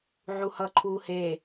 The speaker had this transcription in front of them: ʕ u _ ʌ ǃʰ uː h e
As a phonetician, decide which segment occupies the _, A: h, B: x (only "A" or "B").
A